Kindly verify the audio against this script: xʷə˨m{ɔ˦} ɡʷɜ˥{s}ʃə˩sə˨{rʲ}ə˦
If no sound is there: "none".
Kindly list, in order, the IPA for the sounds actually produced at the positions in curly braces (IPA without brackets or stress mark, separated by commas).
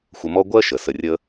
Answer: ɔ˦, none, rʲ